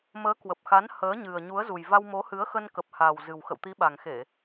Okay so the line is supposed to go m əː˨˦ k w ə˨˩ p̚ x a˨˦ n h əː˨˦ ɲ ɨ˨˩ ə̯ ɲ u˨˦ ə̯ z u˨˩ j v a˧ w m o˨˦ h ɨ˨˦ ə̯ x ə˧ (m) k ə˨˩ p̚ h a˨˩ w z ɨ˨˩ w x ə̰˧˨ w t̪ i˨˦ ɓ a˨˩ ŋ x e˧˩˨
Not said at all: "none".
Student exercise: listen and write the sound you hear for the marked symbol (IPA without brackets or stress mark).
n